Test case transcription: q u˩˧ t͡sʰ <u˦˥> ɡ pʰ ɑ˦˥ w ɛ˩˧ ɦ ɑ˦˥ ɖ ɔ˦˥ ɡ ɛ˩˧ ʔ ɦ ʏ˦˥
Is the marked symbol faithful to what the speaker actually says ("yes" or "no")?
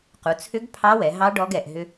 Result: no